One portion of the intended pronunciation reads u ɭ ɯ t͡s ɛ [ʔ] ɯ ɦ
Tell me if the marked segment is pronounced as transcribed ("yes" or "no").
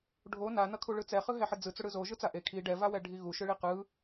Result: no